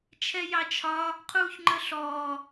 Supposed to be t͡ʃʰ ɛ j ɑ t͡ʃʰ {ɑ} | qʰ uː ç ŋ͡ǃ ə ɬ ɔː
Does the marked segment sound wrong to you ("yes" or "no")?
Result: yes